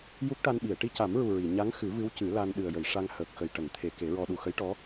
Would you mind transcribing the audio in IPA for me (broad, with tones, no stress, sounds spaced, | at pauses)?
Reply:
j u˦˥ k̚ ʈ a˧ n ɓ i˨˩˨ ə̯ ʈ i˧ c a˨˩˦ m ɹ u˨˩ ɹ i˨˩˨ ɲ a˧˥ ŋ x ɨ˨˩˦ v ɨ˧˥ w c ɨ˨˩˦ l a˧ n ɗ ɨ˨˩ ə̯ j ə˨˩˨ j ʂ a˧ ŋ h əː˨˩ k̚ x ə˨˩ j ʈ ə˨˩˨ ŋ t̪ʰ e˨˩˨ k e˨˩˦ ɹ ɔ˧ ɗ u˨˩ x ə˧˥ j ʈ ɔ˧˥